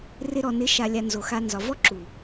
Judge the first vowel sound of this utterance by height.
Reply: high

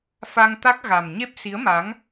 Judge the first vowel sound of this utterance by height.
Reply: low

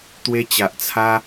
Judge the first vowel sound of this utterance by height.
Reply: mid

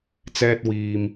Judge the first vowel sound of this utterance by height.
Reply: mid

